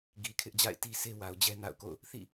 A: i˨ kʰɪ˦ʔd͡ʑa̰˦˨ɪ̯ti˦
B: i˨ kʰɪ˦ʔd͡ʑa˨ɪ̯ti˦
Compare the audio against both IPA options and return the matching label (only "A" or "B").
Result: A